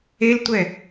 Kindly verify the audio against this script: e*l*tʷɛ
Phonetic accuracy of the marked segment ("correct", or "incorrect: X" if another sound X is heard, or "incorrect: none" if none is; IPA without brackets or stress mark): correct